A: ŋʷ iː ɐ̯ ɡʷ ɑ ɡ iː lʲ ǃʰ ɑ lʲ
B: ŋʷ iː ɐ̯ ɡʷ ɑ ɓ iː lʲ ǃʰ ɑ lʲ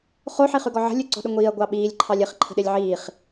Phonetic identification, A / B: B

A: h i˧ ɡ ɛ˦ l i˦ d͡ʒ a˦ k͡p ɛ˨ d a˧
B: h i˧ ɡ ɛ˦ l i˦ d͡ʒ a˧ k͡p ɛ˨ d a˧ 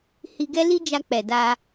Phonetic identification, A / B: B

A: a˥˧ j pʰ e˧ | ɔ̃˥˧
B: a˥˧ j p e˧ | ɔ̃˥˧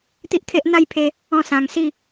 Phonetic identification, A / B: A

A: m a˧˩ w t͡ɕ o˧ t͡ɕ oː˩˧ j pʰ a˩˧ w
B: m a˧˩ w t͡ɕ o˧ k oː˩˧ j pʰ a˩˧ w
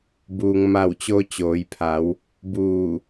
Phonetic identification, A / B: A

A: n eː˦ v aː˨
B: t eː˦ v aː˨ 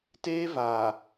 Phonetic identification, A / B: B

